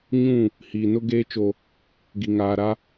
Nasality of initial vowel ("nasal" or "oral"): nasal